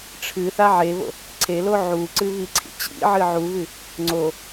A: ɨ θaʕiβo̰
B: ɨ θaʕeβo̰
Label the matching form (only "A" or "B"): B